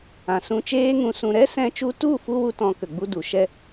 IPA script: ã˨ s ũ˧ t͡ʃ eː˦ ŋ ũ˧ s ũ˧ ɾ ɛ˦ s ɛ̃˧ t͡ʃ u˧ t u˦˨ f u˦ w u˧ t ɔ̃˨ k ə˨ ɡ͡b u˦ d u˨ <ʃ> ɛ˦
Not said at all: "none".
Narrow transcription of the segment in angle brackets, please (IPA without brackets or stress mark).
ʃ